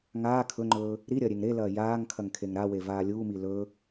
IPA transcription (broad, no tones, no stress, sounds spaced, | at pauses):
ŋ aː kʰ ɵ ŋ͡ǃ ɵː | ɾ i ɾʲ ɐː ɾʲ e ŋ ɾ e l ɐː j aː ŋ kʰ ɐ ŋ kʰ e ŋ ɾ a w e v aː lʲ uː m i l ɵ